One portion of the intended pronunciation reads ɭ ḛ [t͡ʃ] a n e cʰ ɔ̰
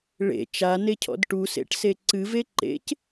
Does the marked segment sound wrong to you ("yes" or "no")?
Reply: no